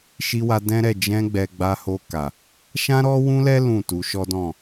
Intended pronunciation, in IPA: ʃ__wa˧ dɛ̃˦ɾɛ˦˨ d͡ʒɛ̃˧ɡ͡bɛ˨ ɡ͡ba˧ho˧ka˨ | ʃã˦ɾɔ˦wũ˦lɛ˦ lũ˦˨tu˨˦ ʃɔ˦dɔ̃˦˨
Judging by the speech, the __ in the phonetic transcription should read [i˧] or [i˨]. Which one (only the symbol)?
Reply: i˧